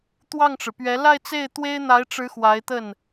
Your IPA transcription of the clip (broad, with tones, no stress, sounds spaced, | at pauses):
t̪ w ɑ˥˩ ŋ ʈ͡ʂ ɻ̩˩ p ɥ ɛ˧˥ l a˥˧ ɪ̯ t͡s e˥˩ ɪ̯ t̪ w e˥ ɪ̯ n̪ a˧˥ ɪ̯ ʈ͡ʂ ɻ̩˧˥ x w a˧˥ ɪ̯ t̪ ə˥˩ n